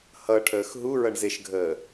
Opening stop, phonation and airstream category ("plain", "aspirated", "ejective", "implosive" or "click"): aspirated